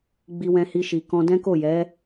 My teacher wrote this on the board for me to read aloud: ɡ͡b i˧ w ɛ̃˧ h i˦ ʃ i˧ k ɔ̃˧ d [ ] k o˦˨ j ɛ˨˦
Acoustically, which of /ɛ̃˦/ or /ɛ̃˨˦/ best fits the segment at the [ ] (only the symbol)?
ɛ̃˦